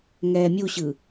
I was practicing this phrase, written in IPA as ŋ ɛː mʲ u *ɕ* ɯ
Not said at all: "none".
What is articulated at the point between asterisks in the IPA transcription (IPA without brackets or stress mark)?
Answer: ɕ